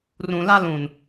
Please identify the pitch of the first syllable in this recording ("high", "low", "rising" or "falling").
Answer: low